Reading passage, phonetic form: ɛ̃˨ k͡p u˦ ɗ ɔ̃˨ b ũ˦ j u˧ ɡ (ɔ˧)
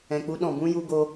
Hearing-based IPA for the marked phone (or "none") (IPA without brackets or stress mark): o˧